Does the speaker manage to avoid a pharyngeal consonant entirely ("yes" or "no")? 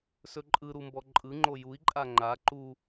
yes